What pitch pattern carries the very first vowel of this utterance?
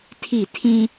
falling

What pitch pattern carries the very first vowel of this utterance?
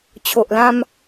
low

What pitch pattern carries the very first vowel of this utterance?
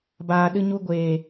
low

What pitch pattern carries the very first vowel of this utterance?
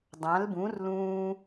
rising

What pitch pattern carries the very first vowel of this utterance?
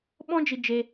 high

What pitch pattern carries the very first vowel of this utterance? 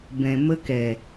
low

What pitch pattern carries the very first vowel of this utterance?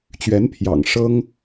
rising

